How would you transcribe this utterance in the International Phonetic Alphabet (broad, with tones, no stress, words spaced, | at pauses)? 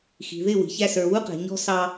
xi̤˨ðɪ˦˨ wi̤˨çæ˦ sə˞˨wu˦qɛ̤˨ ɲɔ̤˦sɑ˦